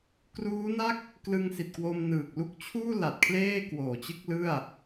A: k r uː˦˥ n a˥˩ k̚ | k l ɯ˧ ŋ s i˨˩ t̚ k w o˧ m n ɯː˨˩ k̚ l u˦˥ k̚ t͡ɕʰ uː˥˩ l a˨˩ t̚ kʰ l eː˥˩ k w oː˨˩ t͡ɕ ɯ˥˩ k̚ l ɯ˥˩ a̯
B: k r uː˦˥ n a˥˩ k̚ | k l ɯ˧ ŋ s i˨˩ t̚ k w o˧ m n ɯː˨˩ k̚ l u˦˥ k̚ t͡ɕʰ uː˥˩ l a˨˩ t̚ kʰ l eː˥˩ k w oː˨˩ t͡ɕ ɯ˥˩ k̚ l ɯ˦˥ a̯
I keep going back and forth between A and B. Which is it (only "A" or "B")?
A